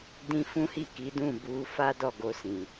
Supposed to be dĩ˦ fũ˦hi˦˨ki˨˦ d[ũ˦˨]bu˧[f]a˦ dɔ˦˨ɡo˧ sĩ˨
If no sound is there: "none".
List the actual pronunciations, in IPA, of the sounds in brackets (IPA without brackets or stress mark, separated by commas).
ũ˦˨, f